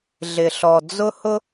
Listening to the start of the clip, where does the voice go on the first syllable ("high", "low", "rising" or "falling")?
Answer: low